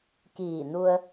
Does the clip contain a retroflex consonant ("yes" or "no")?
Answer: no